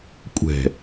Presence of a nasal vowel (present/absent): absent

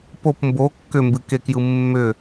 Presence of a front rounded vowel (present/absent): present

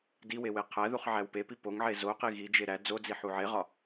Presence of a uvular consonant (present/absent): present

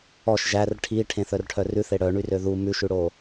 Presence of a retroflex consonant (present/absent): present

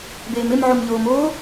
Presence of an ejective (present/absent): absent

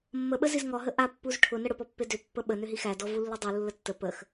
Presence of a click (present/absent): absent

